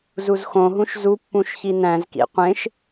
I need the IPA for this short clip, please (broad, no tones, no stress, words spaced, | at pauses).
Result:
zuzxõɦũʃ zupːũʃ çinæ̃zkḭ qʷẽʃ